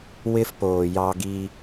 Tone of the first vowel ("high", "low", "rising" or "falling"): high